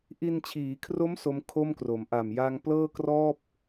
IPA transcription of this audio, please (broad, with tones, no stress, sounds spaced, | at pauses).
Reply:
ʔ i˧ n t͡ɕʰ iː˩˦ kʰ r o˦˥ m s o˦˥ m kʰ o˥˩ m k r o˩˦ m ʔ a˨˩ m j a˧ ŋ p l ɤː˥˩ k r ɔː˥˩ p̚